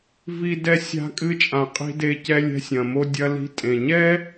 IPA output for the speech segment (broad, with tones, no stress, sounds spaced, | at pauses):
v i˧ d ɛ˧ sʲ a̤˧ kʼ ɨ˧ t͡ʃʼ ã˩ qʼ i̤˧ d e˧ c ɛ˧ lʲ ɛ̤˧ sʲ ɐ̃˩ m o˧ dʲ ɐ˧ l i̤˧ tʼ ẽ˩ ɲ ɛ˥